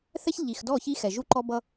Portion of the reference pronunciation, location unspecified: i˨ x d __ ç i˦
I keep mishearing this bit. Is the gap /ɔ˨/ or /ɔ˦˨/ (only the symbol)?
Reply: ɔ˦˨